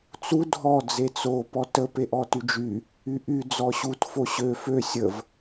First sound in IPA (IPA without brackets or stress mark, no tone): t͡s